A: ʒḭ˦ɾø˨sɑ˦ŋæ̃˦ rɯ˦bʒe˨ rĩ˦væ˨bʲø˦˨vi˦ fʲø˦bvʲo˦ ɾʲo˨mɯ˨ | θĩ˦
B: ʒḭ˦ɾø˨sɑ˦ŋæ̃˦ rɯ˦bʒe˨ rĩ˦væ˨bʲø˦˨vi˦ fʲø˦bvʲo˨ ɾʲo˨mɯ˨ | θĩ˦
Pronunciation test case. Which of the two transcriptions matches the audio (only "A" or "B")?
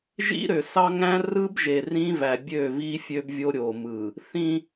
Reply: A